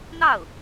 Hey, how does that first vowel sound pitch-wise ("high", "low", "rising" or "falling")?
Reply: falling